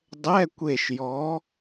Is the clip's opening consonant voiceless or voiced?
voiced